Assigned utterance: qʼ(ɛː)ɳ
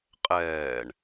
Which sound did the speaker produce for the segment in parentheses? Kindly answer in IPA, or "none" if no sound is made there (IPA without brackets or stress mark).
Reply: ɛː